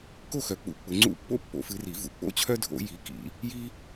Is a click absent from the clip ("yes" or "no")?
no